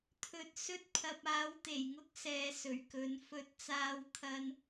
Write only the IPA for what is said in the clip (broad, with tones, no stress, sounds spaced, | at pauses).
t̪ʰ ɵ˨ t̚ s ɵ˥ t̚ pʰ ɐ˧ p̚ aː˨˥ w t̪ e˨˩ j ŋ ʊ˥ k̚ s ɛː˨˧ s ɵ˨˩ ɥ k ɵ˨˧ n f ɵ˧ t̚ t͡s aː˧ w t̪ʰ ɐ˧ n